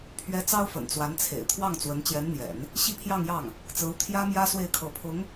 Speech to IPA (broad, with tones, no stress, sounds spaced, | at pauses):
pʰ ɥ ɛ˧˥ t͡s ɑ˥ ʊ̯ f ə̰˨˩ n t͡s w a˧˥ n t͡sʰ ḛ˨˩ ɪ̯ t̪ʰ w ɑ˥˩ ŋ t͡s w ə˧˥ n t͡ɕ j ɛ˧˥ n n̪ j ɛ̰˨˩˦ n | ɕ i˥˧ pʰ j ɑ˥˧ ŋ j ɑ˥˩ ŋ | t͡s ɹ̩˧˥ u˧ t̪ʰ j ä˥ m j ä˥ s w e˥˩ ɪ̯ kʰ ɤ˧˥ pʰ ʊ˧˥ ŋ